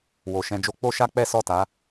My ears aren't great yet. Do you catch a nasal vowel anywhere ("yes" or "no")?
yes